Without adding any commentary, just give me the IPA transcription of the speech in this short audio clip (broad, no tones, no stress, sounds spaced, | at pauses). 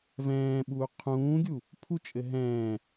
v ɛ̃ː ɓ uː qʰ ũː ɡʲ u | pʰ u t͡ʃʼ ɘ ɦ ɛ̃ː